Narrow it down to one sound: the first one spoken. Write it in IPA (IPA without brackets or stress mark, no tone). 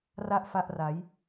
r